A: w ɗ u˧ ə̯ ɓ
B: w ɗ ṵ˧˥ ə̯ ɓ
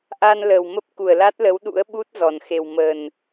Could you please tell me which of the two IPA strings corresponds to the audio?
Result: B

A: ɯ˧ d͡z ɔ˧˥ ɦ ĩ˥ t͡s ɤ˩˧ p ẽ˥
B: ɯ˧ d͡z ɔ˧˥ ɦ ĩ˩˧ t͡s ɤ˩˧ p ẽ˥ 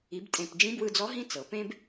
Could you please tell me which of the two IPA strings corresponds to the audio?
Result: A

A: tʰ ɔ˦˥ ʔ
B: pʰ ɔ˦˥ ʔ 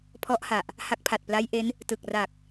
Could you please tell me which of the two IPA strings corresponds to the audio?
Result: B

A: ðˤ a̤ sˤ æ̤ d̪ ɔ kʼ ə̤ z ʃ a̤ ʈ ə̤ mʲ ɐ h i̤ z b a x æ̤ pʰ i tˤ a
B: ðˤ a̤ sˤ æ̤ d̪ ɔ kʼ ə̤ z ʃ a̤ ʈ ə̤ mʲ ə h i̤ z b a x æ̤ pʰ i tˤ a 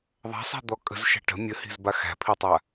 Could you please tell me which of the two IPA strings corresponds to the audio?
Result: B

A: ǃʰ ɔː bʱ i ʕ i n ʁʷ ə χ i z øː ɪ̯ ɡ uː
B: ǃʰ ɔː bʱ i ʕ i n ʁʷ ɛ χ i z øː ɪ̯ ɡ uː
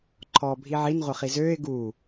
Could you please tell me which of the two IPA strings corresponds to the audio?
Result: A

